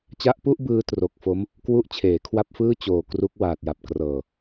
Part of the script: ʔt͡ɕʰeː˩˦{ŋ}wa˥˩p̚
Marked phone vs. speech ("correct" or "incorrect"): incorrect